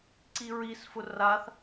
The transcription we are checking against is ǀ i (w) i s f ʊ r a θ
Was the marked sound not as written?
yes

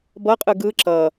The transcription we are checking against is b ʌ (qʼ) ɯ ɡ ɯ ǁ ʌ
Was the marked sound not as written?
no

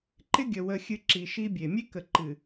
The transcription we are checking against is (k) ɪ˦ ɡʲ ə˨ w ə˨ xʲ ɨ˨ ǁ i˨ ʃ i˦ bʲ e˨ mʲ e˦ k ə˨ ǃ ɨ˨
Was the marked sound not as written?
yes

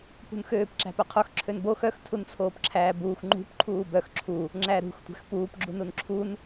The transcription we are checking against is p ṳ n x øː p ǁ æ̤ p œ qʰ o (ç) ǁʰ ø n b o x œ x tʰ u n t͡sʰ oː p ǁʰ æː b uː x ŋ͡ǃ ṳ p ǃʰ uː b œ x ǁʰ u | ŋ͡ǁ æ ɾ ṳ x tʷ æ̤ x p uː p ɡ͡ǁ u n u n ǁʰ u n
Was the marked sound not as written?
yes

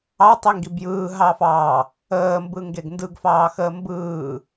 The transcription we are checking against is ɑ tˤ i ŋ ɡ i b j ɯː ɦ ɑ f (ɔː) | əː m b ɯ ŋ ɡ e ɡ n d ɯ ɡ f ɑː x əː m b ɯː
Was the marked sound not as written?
yes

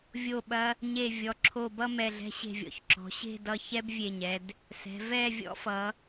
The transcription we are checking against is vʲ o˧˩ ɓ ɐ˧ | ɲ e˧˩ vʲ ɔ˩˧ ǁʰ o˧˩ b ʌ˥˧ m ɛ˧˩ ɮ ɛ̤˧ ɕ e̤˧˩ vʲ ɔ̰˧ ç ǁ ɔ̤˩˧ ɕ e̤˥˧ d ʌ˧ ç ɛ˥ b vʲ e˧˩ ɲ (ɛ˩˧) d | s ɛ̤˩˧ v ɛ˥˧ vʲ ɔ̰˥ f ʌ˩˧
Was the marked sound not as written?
yes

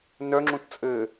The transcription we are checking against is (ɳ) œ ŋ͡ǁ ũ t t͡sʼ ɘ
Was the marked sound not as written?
yes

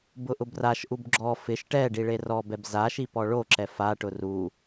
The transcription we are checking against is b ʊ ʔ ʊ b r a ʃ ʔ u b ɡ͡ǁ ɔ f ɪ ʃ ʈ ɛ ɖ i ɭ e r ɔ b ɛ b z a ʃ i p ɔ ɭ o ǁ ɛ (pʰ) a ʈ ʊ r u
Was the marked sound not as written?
yes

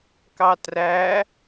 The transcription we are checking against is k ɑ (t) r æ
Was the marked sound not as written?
no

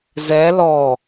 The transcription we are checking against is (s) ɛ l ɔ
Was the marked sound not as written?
yes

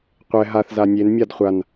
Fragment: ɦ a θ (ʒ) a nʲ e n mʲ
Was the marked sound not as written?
yes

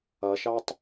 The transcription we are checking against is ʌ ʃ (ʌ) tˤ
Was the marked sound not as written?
yes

